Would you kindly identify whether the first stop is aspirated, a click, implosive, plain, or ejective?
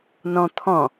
aspirated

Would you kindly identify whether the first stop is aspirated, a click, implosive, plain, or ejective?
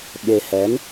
implosive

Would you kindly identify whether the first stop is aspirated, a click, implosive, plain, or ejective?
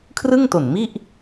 aspirated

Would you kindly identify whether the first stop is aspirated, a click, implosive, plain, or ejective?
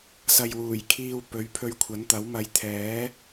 aspirated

